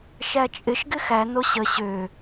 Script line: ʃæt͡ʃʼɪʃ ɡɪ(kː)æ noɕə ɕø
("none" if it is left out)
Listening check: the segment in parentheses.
x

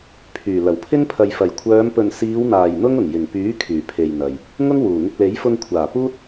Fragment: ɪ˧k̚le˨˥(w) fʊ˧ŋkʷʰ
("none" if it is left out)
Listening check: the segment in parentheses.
j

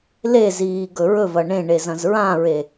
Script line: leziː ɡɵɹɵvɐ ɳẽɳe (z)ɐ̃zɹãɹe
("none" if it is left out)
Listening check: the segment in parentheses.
z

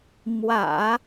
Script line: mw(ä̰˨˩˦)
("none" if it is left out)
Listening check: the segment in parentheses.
ä̰˨˩˦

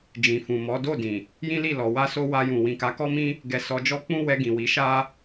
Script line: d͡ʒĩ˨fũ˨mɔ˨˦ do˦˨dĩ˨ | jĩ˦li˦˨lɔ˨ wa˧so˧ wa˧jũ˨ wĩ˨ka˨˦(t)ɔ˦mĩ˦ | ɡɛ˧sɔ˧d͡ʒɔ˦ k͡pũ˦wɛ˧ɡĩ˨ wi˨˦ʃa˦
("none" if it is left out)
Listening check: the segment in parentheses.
k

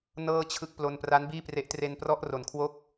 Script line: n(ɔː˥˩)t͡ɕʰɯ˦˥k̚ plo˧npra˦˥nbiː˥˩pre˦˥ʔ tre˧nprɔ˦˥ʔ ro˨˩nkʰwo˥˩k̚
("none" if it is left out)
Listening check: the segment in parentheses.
ɤː˥˩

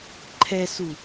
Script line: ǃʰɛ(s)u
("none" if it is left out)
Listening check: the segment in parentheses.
s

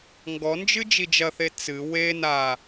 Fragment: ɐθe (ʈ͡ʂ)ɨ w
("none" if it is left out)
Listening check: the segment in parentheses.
t͡s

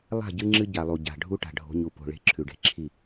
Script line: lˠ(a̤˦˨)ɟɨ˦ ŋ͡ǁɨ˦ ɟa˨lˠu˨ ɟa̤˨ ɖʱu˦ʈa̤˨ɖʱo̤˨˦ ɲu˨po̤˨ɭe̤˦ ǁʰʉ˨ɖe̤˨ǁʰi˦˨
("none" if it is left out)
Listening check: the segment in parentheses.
a̤˦˨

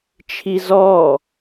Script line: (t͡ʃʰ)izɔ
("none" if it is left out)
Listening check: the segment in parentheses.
t͡ʃʰ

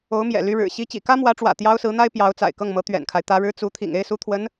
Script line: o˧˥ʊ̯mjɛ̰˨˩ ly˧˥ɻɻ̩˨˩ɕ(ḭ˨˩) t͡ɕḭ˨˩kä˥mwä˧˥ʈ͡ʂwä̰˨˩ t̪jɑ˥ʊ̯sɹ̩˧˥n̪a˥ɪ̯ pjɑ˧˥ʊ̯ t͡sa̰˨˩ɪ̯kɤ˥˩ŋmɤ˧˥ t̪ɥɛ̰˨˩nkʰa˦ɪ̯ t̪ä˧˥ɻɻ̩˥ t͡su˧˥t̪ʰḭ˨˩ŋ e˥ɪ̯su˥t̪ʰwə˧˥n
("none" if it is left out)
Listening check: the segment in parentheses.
i˥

